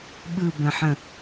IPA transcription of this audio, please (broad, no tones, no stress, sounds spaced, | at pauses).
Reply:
ɓ ɯ b ə̃ ħ ə̃